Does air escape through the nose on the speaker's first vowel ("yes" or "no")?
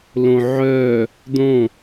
yes